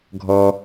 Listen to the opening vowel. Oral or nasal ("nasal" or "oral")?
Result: oral